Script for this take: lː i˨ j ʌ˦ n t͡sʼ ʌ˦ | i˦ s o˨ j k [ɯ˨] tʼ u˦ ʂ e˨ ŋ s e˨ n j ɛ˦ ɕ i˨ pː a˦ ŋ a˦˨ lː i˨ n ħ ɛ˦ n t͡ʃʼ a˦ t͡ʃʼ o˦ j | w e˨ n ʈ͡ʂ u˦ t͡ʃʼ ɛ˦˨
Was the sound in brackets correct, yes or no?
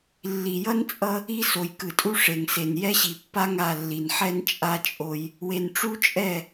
yes